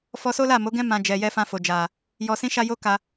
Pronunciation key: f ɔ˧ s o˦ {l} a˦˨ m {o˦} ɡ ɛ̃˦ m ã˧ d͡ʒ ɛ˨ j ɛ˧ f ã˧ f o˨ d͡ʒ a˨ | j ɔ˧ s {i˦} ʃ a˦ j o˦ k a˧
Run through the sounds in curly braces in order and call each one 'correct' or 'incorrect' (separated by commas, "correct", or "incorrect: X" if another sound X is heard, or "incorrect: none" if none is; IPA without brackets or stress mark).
correct, incorrect: o˨˦, incorrect: ĩ˦